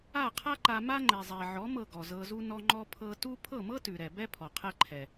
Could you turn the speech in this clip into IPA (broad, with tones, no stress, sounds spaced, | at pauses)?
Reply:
a˥˩ qʰ a˥ ǃ a˧ m a˥ ŋ͡ǃ ɛ˩ zˤ ɛ˩ ʕ ɔ˩˥ m ɤ˥˩ ɡ ɔ˩ z ɤ˧ z u˥ n ɔ˧ ŋ͡ǃ ɔ˧ pʰ ɤ˧ t u˥ pʰ ɤ˥˩ m ɤ˥ t ʉ˩ ɾ ɛ˩ b ɛ˥ pʰ ɔ˩ qʰ ɛ˧ ǃʰ ɛ˩